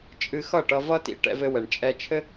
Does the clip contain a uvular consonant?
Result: no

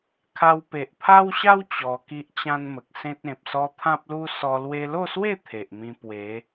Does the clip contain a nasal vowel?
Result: yes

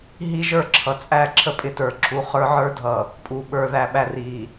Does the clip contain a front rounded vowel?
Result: no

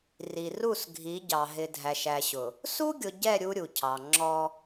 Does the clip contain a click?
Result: yes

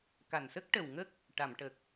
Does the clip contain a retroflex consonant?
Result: yes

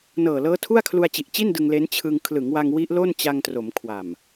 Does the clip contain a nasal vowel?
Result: no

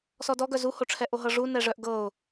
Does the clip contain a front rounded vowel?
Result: yes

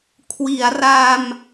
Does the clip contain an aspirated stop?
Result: yes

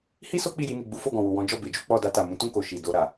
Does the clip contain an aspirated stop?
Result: no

